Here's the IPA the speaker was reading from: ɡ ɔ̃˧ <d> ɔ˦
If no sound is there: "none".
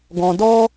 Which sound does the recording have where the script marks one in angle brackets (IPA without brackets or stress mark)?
d